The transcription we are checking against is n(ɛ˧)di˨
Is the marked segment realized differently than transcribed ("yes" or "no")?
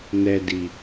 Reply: no